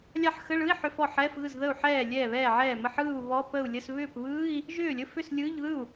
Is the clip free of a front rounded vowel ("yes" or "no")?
no